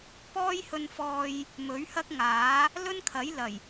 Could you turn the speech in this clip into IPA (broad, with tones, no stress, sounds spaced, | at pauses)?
p ɔː˥ j h ɵ˧ n f ɔː˧ j | m ɵ˨˥ ɥ h ɐ˥ k̚ ŋ aː˨˥ | l ɵ˥ n kʰ ɐ˨˥ j l ɐ˨˩ j